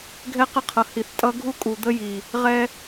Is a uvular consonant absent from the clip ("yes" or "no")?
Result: no